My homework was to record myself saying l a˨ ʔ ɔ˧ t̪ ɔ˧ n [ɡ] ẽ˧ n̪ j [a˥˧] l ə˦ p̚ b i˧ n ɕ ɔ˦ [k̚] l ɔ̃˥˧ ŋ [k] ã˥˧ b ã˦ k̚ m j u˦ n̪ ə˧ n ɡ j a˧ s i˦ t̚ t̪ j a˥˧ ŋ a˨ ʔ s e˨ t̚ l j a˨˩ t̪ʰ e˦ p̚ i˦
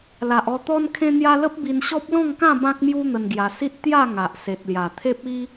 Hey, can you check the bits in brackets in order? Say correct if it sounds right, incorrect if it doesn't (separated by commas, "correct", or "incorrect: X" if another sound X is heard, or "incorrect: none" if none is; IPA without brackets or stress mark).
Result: incorrect: kʰ, incorrect: a˧, incorrect: p̚, correct